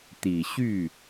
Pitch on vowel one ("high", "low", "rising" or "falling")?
low